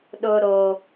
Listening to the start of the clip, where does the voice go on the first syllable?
high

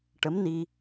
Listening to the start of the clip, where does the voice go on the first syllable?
rising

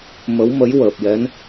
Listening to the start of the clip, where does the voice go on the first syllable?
rising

